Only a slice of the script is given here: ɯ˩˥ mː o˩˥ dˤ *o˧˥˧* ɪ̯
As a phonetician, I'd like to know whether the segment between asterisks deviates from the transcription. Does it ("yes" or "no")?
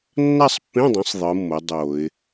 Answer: yes